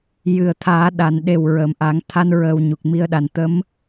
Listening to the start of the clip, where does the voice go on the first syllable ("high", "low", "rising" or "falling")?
low